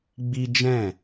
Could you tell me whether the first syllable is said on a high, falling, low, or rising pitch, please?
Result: high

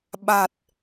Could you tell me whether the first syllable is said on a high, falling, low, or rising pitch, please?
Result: low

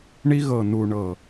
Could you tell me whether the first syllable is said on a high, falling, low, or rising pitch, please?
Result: high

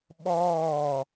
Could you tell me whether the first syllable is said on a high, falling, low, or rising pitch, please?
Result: falling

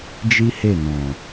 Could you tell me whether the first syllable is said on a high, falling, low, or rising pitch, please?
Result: high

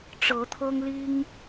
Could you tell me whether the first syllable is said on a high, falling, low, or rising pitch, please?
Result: rising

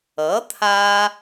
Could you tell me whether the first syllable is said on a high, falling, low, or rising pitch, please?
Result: rising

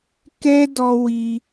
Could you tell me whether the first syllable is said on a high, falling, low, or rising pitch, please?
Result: high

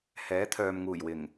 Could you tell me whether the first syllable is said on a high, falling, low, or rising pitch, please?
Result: rising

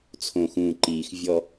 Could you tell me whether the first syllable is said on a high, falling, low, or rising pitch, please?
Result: low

